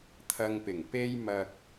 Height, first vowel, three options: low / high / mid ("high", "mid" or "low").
low